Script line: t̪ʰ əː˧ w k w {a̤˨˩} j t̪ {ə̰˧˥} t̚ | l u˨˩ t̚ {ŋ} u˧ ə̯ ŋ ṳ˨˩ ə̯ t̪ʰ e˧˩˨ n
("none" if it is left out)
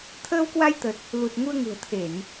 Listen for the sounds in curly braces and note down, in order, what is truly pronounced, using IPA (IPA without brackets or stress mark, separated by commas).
a˧, ə˨˩, ŋ